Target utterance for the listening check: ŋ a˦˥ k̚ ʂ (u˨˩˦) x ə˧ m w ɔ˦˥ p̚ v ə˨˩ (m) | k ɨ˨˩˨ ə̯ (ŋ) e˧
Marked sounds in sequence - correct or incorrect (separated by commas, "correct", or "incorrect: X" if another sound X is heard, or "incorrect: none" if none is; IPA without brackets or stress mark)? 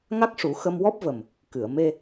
correct, correct, incorrect: m